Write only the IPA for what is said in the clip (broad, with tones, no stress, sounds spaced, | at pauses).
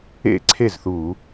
ḛ˥˧ ǀʰ e˥˩ z θ u˧˩˧